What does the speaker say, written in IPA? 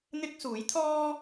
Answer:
n̪ ɪ˥ k̚ s uː˨˥ j t̪ʰ ɔː˥

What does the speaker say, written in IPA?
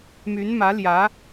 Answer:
m y˧˥ n m ä˧˥ l j ä˧˥

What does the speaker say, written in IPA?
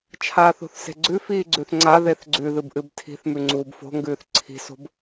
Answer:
t͡ʃʰ aː θ o̤ θ s e̤ ɡ͡ǀ ʉ f iː ɡ͡ǀ ʉ θ ŋ͡ǀ a ð e θ ɡ͡ǀ ʉ ð ɨ b ʔ ɨ b tʰ i̤ θ m ʉ ŋ͡ǀ uː b f o̤ ŋ ɡ ʉː θ ǀʰ i̤ s o̤ b

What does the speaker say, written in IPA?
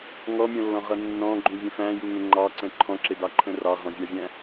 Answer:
ŋ ɔ mʲ ɔ̃ lː ɔ̃ ʁ ʌ nː ɔ̃ ɡ͡ǃ ũ vʲ ə̃ f æ̃ j u ŋ ə̃ ŋ͡ǃ ɑ ǀ ə̃ ǃʰ ɔ̃ ǁ ɪ d ɑ ǃʰ ə̃ r ɑ ʁ ɔ̃ vʲ ɑ vʲ æ̃

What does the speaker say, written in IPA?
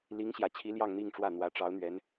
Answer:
l i˧˥ ŋ ɕ j ä˨˩ t͡ɕʰ i˧˥ l j ɑ˥˧ ŋ n̪ i˥˧ ŋ ʈ͡ʂ w ä˥˩ n̪ w ä˧˥ ʈ͡ʂ ɑ˧˥ ʊ̯ n̪ ɥ ɛ˧˥ n

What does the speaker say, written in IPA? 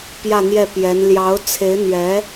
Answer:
p j ä˥˧ n̪ j ɛ˥˩ p j ɛ˧˥ n l j ɑ˧˥ ʊ̯ t͡sʰ e˧˥ ɪ̯ n̪ ɥ ɛ˧˥

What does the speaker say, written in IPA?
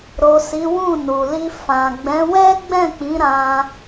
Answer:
ɾ o˨ s i˨˦ w ũ˦˨ n u˨ l i˧ f ã˨ ɡ͡b ɛ̃˨˦ w ɛ˦ ɡ͡b ɛ̃˦˨ k͡p ĩ˨˦ ɾ ã˧

